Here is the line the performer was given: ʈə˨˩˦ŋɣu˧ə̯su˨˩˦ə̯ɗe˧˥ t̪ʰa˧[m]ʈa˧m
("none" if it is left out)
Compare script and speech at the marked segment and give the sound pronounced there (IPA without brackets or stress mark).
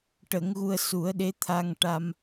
ŋ